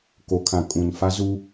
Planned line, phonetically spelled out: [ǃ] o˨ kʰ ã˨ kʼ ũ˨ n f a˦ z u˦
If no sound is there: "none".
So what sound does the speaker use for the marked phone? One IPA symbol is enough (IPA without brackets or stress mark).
k